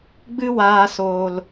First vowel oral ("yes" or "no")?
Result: yes